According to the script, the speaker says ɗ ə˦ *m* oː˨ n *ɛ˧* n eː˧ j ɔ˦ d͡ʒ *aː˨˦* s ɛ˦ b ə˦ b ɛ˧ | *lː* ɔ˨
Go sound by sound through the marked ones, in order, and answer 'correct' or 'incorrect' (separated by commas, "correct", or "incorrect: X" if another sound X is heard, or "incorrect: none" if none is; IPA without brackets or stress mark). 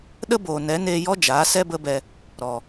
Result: incorrect: b, incorrect: ɛ˨˦, correct, incorrect: ɾ